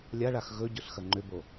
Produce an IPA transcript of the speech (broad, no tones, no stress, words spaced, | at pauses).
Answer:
lʲaɭax ɣɵɟɵɬ xɐŋ͡ǃʏbo